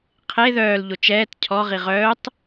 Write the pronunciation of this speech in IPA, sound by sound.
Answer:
qʰ e ð œː l ʎ o t͡ʃ ɛː t cʰ ɔ ʁ i ʁ œː tˤ

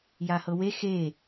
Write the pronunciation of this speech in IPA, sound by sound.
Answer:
j a h ɤ w e x e

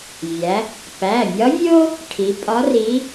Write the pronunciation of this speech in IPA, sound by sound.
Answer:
vʲ æ˩˧ | p æ˩˧˩ mʲ ɒ˧˥ vʲ o˥ | ʈʰ i˩˧ pʼ ɒ˧˥ r i˧˥

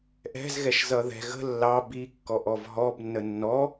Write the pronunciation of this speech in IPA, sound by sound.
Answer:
ʔ ɛ̤ z ɣ ɛ ʃ z ʌ ð ɛ̤ ɣ ə̤ lː ɑ b i kː ɔ ʔ ɔ v ɦ ɔ b nː ə nː ɔ

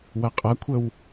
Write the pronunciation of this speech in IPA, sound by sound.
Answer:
w ɐ qʼ ɐ kʷʰ ə w

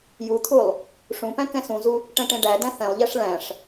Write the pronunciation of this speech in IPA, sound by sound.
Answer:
j u t̪ʰ u lˠ | ʂ ũ p æ̃ k ɛ̃ s ũ z u | ʈ ɛ̃ ʈ ẽ ɖ æ d æ̃ θ ɛ̃ lˠ ʎ ɛ ʂ ɭ æ̃ ʂ

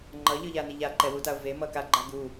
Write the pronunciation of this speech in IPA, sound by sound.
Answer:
ŋ͡ǃ ʌ ʎ ɯ ʎ a n i ʎ a ǃ ɛ w u t a o̯ v e m ʌ k a ɡ͡ǃ a ɡ u

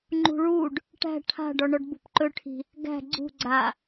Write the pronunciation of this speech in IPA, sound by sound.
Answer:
ŋ͡ǃ ṳ ɭ u ɖ | ʈ æ̤ ʈʰ a̤ ɖ ɔ ɳ ɔ ɖ b ṳ p ǃ ɵ ʈʰ i̤ | ɡ æ̤ ɡ͡ǀ ṳ ɡ͡ǀ a

